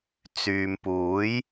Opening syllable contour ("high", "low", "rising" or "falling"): low